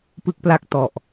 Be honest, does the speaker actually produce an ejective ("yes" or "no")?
no